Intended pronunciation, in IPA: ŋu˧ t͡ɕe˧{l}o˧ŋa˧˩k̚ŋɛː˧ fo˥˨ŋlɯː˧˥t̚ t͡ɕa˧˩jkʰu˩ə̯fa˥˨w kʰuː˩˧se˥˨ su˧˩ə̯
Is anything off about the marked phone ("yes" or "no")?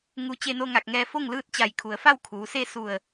yes